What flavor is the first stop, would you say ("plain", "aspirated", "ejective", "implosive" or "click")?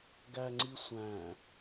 plain